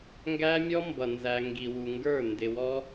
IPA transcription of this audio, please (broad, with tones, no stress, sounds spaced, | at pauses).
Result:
ŋ ɡ æ˦ mʲ ɔ˦ m b ʌ˨ n z æ˨ ŋ ɡ i˨ w u˨ ŋ ɡ ə˞˦˨ n d ɪ˨ w ɔ˦